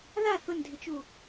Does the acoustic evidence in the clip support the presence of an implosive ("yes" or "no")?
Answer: no